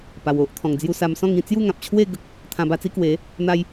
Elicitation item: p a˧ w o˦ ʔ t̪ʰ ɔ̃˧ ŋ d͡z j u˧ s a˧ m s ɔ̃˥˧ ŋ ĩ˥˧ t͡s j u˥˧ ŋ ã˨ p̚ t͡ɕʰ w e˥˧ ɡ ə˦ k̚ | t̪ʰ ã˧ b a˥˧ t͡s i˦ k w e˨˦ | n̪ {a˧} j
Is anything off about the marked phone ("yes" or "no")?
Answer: yes